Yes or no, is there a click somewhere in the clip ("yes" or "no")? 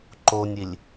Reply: yes